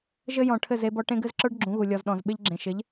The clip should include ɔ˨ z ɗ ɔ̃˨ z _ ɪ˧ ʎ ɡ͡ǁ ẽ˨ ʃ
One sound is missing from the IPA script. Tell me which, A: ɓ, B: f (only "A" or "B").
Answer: A